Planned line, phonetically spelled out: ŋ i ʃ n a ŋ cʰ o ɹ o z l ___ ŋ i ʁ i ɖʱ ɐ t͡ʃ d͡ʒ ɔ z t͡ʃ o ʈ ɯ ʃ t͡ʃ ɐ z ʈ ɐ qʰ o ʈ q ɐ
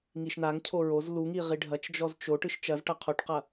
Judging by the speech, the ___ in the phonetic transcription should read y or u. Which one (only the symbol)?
u